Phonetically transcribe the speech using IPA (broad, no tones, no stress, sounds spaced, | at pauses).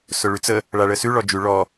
s ʊ ɭ ʉ t͡s ə | ɭ a ɭ ə s ʉ ɭ ɔ d͡ʒ ʉ ɭ ɔ